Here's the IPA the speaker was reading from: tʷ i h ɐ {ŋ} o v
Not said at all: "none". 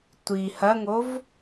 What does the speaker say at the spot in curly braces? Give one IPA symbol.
ŋ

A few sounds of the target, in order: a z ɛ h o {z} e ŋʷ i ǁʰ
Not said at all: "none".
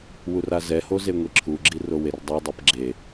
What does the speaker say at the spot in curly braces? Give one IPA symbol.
z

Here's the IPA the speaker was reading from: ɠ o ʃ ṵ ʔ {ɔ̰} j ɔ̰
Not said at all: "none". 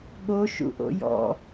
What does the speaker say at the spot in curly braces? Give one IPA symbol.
o̰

